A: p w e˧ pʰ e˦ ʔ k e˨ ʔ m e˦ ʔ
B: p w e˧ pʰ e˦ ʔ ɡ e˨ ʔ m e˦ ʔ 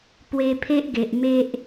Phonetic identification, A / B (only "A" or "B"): B